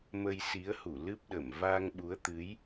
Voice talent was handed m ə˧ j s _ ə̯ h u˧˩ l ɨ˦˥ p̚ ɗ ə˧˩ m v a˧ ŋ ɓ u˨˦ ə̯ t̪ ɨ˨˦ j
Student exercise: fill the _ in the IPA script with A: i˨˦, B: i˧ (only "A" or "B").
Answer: A